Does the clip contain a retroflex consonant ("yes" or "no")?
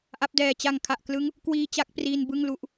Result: no